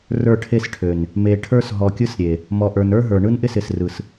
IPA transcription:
rə˞˦˨ʈʰe˦sʈʰø˨n | me˨ʈʰə˞˦s ɦɔ˨kʲɯ˦sɾʲe˨ | mɔ˨ʔə˞˨n ə˞˦ ɦə˞˨ ɳɯ˦nʔɪ˦sɪ˨srɯ˨s

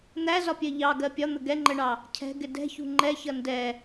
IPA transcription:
n̪æzɒpʲɜ ʎɑɡɜ pʲɒn̪ə ɡɛŋ͡ǃəɳɑ | cʰɛ̤ɡɪ dɛ̤çṳ ŋ͡ǃɛçʌ ndɛ

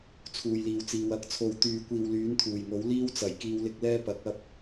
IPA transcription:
t͡sʰuː˨jliː˨wt͡siː˨w ɐ˧k̚t͡sʰo˨wt̪yː˨ kʷiː˨wlyː˨˥nt̪ʰuː˨˩jŋo˨˥w liː˥wt͡sɐ˨˩jkiː˨˧w lɪ˧k̚lɛː˥pɐ˨˥k̚ ɐ˥p̚

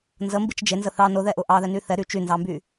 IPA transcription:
nzəmbit͡ʃ d͡ʒenzə θɑ nʊðɛʔʊ ʔɑðɛny θɛɾy t͡ʃynzɑmby

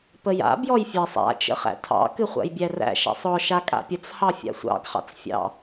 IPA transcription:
pəja̰ bjɔjfʲæsˤ a̰ t͡ʃə̰χæ̰tʰɑ̰ kɨχʷa̰jbʲæræ̰ ʃæ̰sˤɔ ʃakʼa̰pʲət͡s hɑfʲa̰sʷɑ̰ɡ χɑ̰t͡sfʲɑ̰

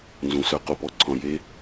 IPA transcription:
nzũ˨sœ˧ qo˨pɔ˦ǀʰɔ̃˨ je˦

